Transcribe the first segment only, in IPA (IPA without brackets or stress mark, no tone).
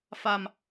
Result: f